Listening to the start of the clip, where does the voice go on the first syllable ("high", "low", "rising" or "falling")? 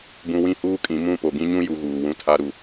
low